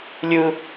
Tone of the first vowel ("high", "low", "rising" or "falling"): high